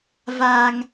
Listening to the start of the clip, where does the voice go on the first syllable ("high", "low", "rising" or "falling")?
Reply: low